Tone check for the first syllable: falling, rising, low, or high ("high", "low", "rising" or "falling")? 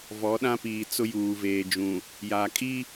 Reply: rising